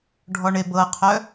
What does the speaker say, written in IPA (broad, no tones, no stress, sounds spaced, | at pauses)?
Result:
ɖʱ ɔ ɳ e b ɤ qʰ œ